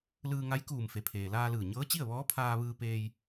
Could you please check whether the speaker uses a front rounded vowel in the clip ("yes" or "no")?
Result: no